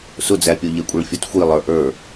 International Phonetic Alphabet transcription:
sʊd͡zæpʲɔ ʎɛkʷʼɛɭfʲɔtxʷi lˠə˞ʔə˞

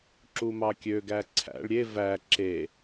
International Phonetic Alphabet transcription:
ǁumɑkʲø ɡæǀʰæ̰ɭ ɾʲe væ ǁe

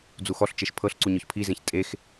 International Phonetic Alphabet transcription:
d͡zuxɔɬt͡ʃeʃ pʰɤɬǀu ɲɔçpʰizẽç tʼex

